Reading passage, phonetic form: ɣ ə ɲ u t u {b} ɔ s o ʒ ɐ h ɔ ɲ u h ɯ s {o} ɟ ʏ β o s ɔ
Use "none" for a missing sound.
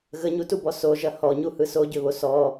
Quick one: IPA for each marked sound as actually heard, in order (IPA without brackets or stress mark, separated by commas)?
b, o